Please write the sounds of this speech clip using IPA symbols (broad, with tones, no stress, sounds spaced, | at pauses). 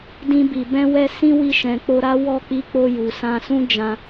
d ĩ˧ b i˨ b ɛ̃˧ w ɛ˧ s ĩ˦ w i˧ ʃ ɛ̃˨ k͡p o˧ ɾ a˦ w ɔ˦˨ k͡p i˧ k͡p o˧ j u˨ s ã˧ s ũ˦ d͡ʒ ã˧